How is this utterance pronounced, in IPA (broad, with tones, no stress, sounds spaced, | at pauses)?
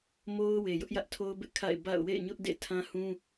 m o˦ ʊ̯ w e˨ j ʊ˦ ʔ j ä˦ ʔ tʰ o˦ ʊ̯ b ɪ˦ ʔ kʰ a̰˦˨ ɪ̯ b a̰˦˨ ʊ̯ w ḛ˦˨ ɪ̯ ɲ ʊ˦ ʔ d ḛ˦˨ tʰ ã˦ h ũ˦